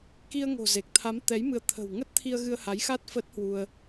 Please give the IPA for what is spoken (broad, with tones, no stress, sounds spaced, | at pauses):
k i˧ ə̯ ŋ o̤˨˩ z e˨˩ k̚ t̪ʰ a˨˦ m t̪ ɛ˨˦ j m ɨ˨˦ ə̯ t̪ʰ ə̤˨˩ w ŋ ə˦˥ t̚ t̪ʰ i˧ ə̯ ɣ ɨ˧ ə̯ h a˨˦ j x a˦˥ t̚ f ə˦˥ t̚ h w u˧ ə̯